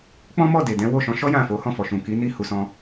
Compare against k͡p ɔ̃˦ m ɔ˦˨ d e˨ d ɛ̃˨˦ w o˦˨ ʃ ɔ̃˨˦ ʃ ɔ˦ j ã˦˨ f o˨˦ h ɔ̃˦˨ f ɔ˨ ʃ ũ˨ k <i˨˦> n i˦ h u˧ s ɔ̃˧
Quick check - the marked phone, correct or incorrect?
correct